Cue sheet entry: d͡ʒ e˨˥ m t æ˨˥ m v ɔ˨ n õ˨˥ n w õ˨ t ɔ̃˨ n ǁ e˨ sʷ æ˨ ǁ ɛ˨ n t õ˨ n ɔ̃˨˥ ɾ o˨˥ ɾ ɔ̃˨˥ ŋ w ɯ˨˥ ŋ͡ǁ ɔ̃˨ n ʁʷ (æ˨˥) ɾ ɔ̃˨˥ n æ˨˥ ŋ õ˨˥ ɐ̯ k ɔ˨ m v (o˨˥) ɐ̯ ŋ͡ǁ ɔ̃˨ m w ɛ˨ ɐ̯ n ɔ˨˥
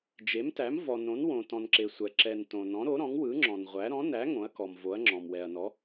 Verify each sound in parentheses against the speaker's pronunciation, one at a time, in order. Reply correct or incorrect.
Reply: correct, correct

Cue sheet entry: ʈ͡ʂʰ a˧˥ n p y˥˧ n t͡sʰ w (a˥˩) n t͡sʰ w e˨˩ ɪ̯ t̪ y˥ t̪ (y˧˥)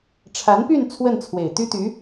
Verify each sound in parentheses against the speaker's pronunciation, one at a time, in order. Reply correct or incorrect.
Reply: incorrect, correct

